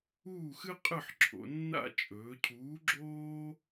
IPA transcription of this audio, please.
uː˥˨ x ɨ˥ qʼ ɨ˥˨ ħ ǁʰ o̰˩˧ nː a̰˥˨ t͡ʃʼ ɵː˩˧ cʰ uː˨˥ ɡ͡ǁ oː˥

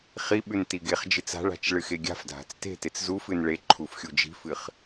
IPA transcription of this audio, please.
χ i ɓ ʉ n t i ɡ e χ d͡ʒ ɨ t͡s a̤ ɭ a̤ t͡ʃ ɭ ɨ x e ɡʲ a̤ f dʱ a̤ t͡s t e̤ t e t͡s z u f ɨ n ɭ e ǃʰ u f xʲ u d͡ʒ i̤ f ɨ χ

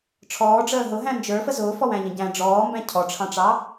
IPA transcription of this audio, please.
ʈ͡ʂʰ ɔː ɖ͡ʐ əː ɦ ʊ ɦ æ̃ n d͡ʒ ə˞ f ə z ʊː f ɔ w æ̃ ʎ ə̃ ɟ æ̃ ɖ͡ʐ ɔː m b æ̃ cʰ ɔ ʈ͡ʂʰ ɑ̃ ʈ͡ʂ ɑ

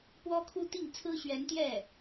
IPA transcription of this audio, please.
p w ɔ˥ kʰ u˥ t̪ i˥˩ ŋ t͡sʰ ɹ̩˥ ɕ ɥ ɛ˧˥ n t̪ j ɛ˥˩

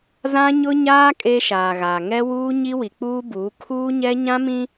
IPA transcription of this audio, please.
z ã˦ ɲ ʊ˦ ɲ aː˦ kʼ e˦ ʃ aː˨ ɣ a˨ ŋ ɛ˦ w uː˦ ɲ i˦ w i˨ k͡p uː˦ b uː˨˦ kʰ uː˦ ɲ ɛ˦ ɲ ã˦ m ĩ˦

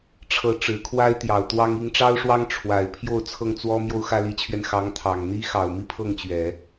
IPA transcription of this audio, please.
ʈ͡ʂʰ ɤ˧˥ ʈ͡ʂ ɻ̩˨˩ kʰ w a˥ ɪ̯ t̪ j ɑ˨˩ ʊ̯ t̪ w ɑ˥ ŋ i˧˥ ŋ ʈ͡ʂ ɑ˥ ʊ̯ ʂ w ɑ˥ ŋ ʈ͡ʂʰ w a˨˩ ɪ̯ pʰ j o˥˧ ʊ̯ t͡sʰ ɤ˥˩ ŋ t͡s w ɔ˥ m j o˥ ʊ̯ x ä˥ l i˧˥ t͡ɕʰ ɥ ɛ˧ n x ɑ˧˥ ŋ t̪ʰ ɑ˨˩ ŋ n̪ i˥ x ɑ˨˩ ʊ̯ m i˥˧ pʰ ɤ˥˩ ŋ t͡ɕ ɥ ɛ˨˩˦

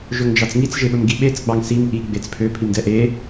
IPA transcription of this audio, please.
ʒ ɵ ŋ d͡ʒ ɑ t͡s ŋ i t͡s ʒ e ɓ ɵ m ɡ i ɓ e t͡s ɡ͡b ɑ ŋ s i m ʔ i ɡ͡b e t͡s pʰ ø pʰ i m d ɛ ʔ e

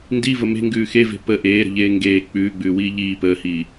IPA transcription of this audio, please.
n d i v ə m e̤ ŋ ɡ ʉː x e v e̤ p ə ʔ eː ɾ ə̤ ʎ eː ŋ ɡ eː k͡p ʉː ɡ͡b ʉː w iː ʎ iː p əː h iː

